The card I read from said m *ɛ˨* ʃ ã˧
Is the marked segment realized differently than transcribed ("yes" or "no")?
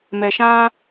no